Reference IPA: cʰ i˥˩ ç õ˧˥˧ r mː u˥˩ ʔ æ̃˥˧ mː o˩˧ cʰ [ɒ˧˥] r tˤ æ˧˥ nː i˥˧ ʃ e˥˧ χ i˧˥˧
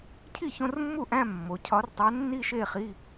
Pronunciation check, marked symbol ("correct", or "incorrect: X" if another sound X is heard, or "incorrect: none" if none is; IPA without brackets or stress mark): correct